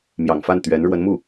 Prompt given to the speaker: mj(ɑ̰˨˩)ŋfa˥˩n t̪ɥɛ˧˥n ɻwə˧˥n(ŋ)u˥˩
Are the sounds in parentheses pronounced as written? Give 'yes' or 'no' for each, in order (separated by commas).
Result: yes, no